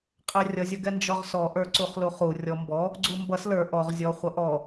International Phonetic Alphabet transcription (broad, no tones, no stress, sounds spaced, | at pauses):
qʼ ɛ rʲ ʌ zʲ ʌ ɡ ɛ n d͡ʒ ɔ ʁ s ɔ ʔ ə˞ ǀ u χ l u χ u rʲ ɔ m b ɔ | ɡ͡ǀ u m b ʌ s l ə˞ ʔ ɔ ʁ zʲ ɔ χʷ ʌ ʔ ɔ